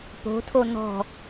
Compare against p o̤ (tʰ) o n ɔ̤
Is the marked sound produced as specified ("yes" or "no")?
yes